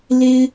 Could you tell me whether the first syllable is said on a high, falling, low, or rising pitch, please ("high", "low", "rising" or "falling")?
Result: high